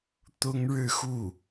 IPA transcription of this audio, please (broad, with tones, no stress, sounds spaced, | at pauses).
t̪ ʊ˥ ŋ ɻ ɻ̩˥˧ x u˥˩